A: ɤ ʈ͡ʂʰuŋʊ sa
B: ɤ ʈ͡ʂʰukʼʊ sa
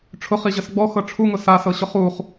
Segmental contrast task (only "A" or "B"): A